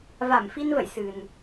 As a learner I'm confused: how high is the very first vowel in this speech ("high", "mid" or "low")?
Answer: low